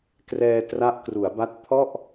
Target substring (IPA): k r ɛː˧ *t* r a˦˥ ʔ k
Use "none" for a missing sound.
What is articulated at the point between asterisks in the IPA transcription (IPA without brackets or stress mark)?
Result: t